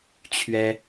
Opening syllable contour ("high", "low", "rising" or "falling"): high